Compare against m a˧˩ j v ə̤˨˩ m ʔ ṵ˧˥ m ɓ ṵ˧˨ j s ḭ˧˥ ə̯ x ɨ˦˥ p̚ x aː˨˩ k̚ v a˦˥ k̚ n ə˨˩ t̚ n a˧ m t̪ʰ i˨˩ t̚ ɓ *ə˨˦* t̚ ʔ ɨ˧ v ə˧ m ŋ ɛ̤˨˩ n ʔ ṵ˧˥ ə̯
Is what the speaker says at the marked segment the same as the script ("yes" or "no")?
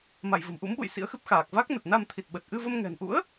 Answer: no